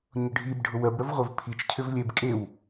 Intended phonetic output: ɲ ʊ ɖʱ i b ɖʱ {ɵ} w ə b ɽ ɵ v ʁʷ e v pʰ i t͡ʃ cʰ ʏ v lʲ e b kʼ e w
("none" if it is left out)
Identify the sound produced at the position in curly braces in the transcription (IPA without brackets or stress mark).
ʊ